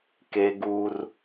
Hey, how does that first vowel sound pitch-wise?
high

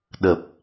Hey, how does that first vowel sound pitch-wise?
low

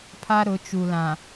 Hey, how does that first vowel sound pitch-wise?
high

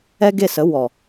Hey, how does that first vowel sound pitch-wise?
high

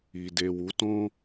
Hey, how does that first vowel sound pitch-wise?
low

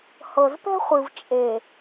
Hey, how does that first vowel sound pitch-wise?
low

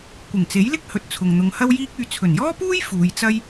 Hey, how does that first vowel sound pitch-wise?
low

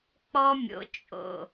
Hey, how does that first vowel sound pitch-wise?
high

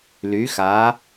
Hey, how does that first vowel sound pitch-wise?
rising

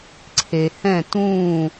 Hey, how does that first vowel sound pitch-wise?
low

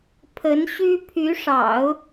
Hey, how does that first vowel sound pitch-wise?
rising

